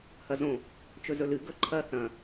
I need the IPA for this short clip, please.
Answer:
h ɐ z õ | t͡ʃ ɵ z ɵ l ɨ ɡ ɵ ǃʰ ɐ θ ɐ̃

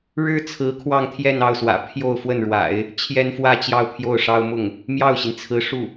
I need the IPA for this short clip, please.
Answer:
ɻ ɻ̩˥ t͡sʰ ɹ̩˧˥ kʰ w ɑ˥˧ ŋ t̪ʰ j ɛ˥˧ n ɑ˥˩ ʊ̯ s w ä̰˨˩ pʰ j o˥˧ ʊ̯ f w ə˥˩ n ɻ w a̰˨˩˦ ɪ̯ | t͡ɕʰ j ɛ˥ n f w ä˥˧ t͡ɕ j ɑ˥˧ ʊ̯ pʰ j o˥˩ ʊ̯ ʂ ɑ˥ ʊ̯ m ʊ˥˩ ŋ | m j ɑ˥˩ ʊ̯ ɕ i˩ n t͡sʰ ɹ̩˧˥ ʂ u˥˩

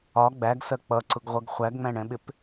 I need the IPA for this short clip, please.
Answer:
ɒ ɡ͡b æ ɡ s ɜ k͡p ʌ ǀ ʊ ɡ ʁʷ ʌ ɡ χʷ æ ɡ ŋ͡m æ̃ ɳ ɛ̃ ɓ ɪ p

